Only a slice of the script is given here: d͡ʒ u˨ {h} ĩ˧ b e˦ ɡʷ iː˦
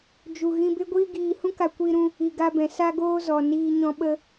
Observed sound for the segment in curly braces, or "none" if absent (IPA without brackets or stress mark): ɣ